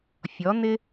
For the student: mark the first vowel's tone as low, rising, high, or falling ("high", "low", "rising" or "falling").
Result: rising